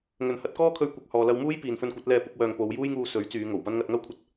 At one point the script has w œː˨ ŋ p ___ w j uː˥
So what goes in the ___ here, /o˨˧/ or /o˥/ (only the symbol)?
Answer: o˨˧